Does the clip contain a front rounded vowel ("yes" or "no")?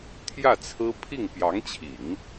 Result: no